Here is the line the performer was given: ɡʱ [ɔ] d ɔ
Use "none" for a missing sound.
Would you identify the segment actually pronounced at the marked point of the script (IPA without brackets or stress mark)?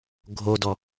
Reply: o